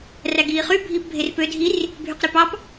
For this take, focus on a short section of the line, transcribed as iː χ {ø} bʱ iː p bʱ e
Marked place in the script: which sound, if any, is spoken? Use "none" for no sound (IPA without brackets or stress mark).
y